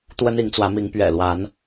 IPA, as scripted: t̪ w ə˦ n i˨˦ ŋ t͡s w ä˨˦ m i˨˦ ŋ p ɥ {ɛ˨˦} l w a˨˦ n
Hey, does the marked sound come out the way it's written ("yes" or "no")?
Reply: no